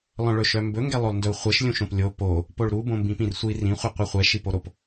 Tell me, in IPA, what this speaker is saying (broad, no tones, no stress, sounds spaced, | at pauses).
lˠ œ̃ ɭ ɵ ʃ œ m b ɵ ŋ ɡ ɛ lˠ o lˠ n d ɵ u̯ χʷ ɛ ʃ lʲ ũ ʃ õ p lʲ o p o | p o ɭ ɾ u b õ m b ĩ p ĩ r sʷ i r ĩ χʷ i qʷ œ χʷ ɛ ʃ i p o ɾ o p